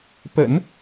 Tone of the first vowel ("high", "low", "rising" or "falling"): low